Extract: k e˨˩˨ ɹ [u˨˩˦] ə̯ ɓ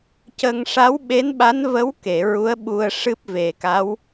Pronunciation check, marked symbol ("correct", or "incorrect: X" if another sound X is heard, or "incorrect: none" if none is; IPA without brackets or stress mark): incorrect: u˧˥